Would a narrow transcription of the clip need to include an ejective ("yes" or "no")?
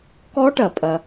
yes